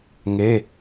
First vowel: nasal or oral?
oral